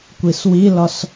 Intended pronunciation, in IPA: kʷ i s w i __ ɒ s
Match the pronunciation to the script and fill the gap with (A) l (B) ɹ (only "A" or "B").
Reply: A